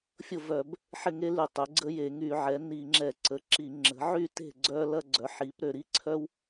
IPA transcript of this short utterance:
fʲʊ˥˨vœ˧˩˧b | ħɪ˥˨ ŋe˥ly˧˩˧ tˤʏ˩˥ɡ͡ǀə˥je˧˩˧ ŋy˧˩˧ʕɛ˩˥ni˧˩˧ ŋ͡ǁɛ˧˩˧ǀə˩˥ǁi˧˩˧ ŋ͡ǁə̤˩˥ʕy˥˨te̤˥˨ ɡ͡ǀœ˥lɐ˥ ɡ͡ǀœ˩˥ħi˩˥pɾø˧˩˧ɾi˥ ǀʰœ˥w

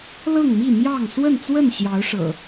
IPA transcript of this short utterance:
lɤ˥˨ŋmi˥˨mjɑ˥˨ŋ swə˥˨nt͡swə˥˨n ɕjɑ˨˦ʊ̯ʂɤ̰˨˩

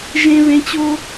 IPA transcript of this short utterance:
ʒẽ˦ βẽ˦t͡ɕo˥

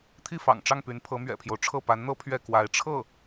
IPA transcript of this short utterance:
t̪ʰi˥˩fɑ̰˨˩ŋʈ͡ʂɑ˥˩ŋpy˧˥n pʰɤ˧˥mɥɛ̰˨˩pʰjo˦ʊ̯ʈ͡ʂʰɤ˥˩ pa˧˥nn̪ɤ˥ pʰɥɛ˥˩kwa˧˥ɪ̯ ʈ͡ʂʰɤ˥˩

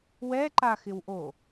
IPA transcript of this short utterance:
wɛǃaxɪwʔo

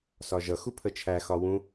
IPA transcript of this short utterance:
sɒʒʌ xupʰət͡ʃʰæ xɒwũ

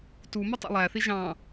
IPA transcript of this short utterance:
tumʌ tˤæ̰lˠæθi ʒɑ̃

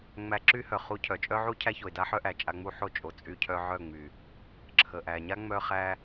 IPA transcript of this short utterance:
ŋ͡mæ˧ǁy˦hœ˨ χu˧cʰœ˨t͡ʃʼœ˦ʕu˦ cʰæ˦ço˨ɪ̯da˦ħœ˦ ʔæ˨t͡ʃʼa˧ŋ͡mu˦ħo˦˨ t͡ʃʼo˨ t͡sʼy˧cʰœ˧ ʕœ˦˨ŋ͡my˨ | ǁʰə˨ʔæ˨ ɲa˦ŋ͡mœ˧χæ˧

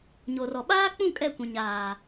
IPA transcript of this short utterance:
ɲo˨rɔ˨ ɓaː˦k͡pũ˦˨ kʼɛ˦˨kʷĩ˨ɲaː˨

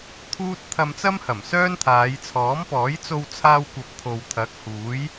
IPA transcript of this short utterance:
t̪ʰuː˥t̚ t̪ʰɐ˧mt͡sɐ˥mhɐ˨˩m sœː˥nt̪ʰaː˨˧j t͡sʰɔː˨˥mpɔː˨˥j t͡so˧wt͡sʰaː˧wkʷɐ˨p̚ t̪ʰo˨wt̪ʰɐ˨˥k̚huː˨˥j

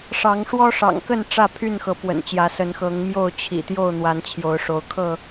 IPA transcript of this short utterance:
ʂɑ˨˦ŋ ʂwɔ˦ʂɑ̰˨˩ŋkə˥˨n ʈ͡ʂä˥˨ pʰy˥˨nxɤ˨˦pwə̰˨˩nt͡ɕjä˨˦ sə˨˦nxɤ˨˦ŋmjo˥˨ʊ̯ t͡ɕʰḭ˨˩t̪jo˥˨ʊ̯n̪wa˨˦n t͡ɕʰjo˨˦ʊ̯ʂo˨˦ʊ̯kʰɤ˥˨

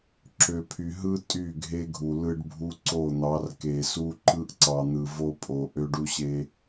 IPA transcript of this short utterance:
ǁø˨pʰy˨ ɦɯ˦ tʼy˦˨ɡʱe˦ɡʱu˨ lɯ˦ɖbʱu˦ ǀo˦˨n̪ɑ˨˦r ke˨su˦ ǃɯ˦ʔ ǀɑ˨n̪ɯ˨ vo˦pʼo˨ ʔø˦ɖu˦ ɕe˦

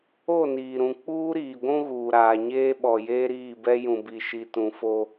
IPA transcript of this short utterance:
o˦˨niː˨ɾũ˨ k͡puː˦ɾiː˨ɡʷũ˦ ɣuː˨ɾaː˨ɲeː˦ɓɔ˨ jeː˦ɾiː˦˨bɛ˦ jũ˨bi˨ʃi˨tũ˨ fo˦

